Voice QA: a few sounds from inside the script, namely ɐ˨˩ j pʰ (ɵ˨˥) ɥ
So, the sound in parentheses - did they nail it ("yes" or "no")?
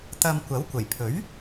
yes